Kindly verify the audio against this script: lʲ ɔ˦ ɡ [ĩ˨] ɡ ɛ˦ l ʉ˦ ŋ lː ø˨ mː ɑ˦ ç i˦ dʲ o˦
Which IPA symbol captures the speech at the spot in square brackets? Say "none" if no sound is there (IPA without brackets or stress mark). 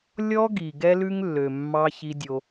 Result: i˨